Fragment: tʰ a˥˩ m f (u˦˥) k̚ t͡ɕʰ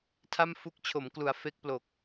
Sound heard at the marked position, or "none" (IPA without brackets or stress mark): u˦˥